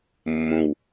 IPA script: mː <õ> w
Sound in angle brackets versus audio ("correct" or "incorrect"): correct